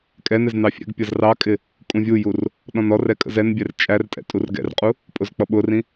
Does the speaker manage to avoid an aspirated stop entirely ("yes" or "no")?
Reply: yes